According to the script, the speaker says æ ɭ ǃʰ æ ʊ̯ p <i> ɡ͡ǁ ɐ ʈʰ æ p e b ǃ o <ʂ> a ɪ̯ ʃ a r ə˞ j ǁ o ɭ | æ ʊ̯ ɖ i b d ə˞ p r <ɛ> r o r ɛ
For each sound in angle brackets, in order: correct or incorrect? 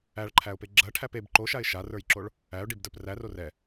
incorrect, incorrect, incorrect

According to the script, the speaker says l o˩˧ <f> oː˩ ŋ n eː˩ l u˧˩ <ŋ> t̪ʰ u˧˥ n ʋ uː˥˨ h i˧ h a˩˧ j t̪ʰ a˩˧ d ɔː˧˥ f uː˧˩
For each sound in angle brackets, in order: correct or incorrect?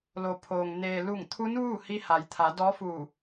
incorrect, correct

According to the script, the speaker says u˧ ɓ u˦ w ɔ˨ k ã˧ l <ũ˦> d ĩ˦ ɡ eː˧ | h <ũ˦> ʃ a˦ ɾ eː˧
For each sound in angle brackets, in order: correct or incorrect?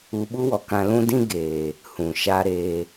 correct, incorrect

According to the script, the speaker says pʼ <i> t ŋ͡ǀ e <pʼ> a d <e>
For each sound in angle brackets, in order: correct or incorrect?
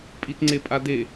correct, correct, correct

